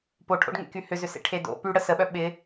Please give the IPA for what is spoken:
p o ʈʰ o̰ ɖ ŋ ḛ k y h ʏ z ʏ s ḛ ʈʰ e d o̰ p y ɽ ə s ə ɓ œ ɓ ɪ

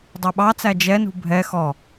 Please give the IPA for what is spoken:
dˤ ə˞ ɓ ɑ t͡s æ d͡ʒ ɛ n ṳ bʱ ɛ x ɔ

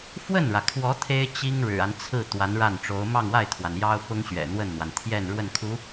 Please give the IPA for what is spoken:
f w ə˥˩ n ɻ ä˩ kʰ w ɔ˧˥ t̪ʰ e˥ ɪ̯ t͡ɕ i˥ ŋ ɻ ɻ̩˨˩ a˦ n t͡sʰ ɹ̩˥˩ t̪ w a˧˥ n ɻ a˥˩ n ʈ͡ʂ o˧˥ ʊ̯ m ɑ˥˧ ŋ w a˥˩ ɪ̯ t̪ʰ w a˩ n j ɑ˥ ʊ̯ p ʊ˥ ŋ ɕ ɥ ɛ̰˨˩ n̪ w ə˥˩ n n̪ w a˩ n t̪ʰ j ɛ˥˧ n ɻ w ə˥˩ n kʰ u˧˥

